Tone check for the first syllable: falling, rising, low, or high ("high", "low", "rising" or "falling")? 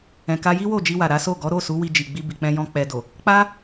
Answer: low